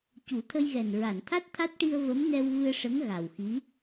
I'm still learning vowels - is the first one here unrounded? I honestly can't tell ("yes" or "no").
no